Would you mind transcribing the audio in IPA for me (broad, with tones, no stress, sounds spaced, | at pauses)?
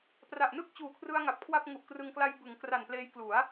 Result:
p r a˨˩ ʔ n ɯ˥˩ k̚ t͡ɕ uː˨˩ kʰ r ɯ˧ a̯ ŋ a˨˩ p̚ kʰ w a˥˩ p̚ ŋ u˨˩ ʔ k r ɯ˧ ŋ k l a˧ j b ɯ˩˦ ŋ k r a˨˩ n p l eː˧ j k l u˩˦ a̯